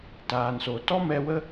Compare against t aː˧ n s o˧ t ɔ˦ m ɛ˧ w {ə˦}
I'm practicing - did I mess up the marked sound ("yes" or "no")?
no